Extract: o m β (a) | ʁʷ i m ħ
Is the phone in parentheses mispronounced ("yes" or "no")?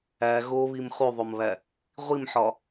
yes